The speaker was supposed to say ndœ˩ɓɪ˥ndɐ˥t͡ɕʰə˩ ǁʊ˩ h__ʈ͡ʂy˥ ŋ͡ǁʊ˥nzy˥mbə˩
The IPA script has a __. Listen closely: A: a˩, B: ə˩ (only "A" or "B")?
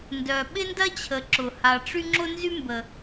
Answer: A